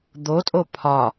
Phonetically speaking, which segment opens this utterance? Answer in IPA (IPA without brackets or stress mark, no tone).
d̪